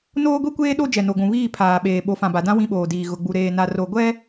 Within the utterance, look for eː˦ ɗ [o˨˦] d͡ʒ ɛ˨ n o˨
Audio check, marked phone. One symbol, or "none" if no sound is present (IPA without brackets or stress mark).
o˦